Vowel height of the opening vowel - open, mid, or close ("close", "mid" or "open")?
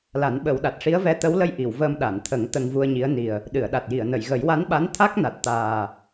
open